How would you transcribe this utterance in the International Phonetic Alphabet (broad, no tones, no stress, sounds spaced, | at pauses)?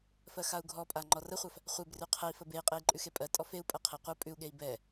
f ɜ x a u̯ ɡʱ ɔ pʼ a ŋ͡ǃ ɔ r ə χʷ a f | χʷ e b r ʉ qʰ ə i̯ f ə b e i̯ qʼ e i̯ ǃʼ ʉ x e pʼ ɜ tʼ ɔ f e u̯ pʼ ɜ qʰ e qʷ ɜ pʼ ʉ u̯ ɠ e i̯ b ɛ